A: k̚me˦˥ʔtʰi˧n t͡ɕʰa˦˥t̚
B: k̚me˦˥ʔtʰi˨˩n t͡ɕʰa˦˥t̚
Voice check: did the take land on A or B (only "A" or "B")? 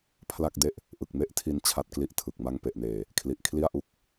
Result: A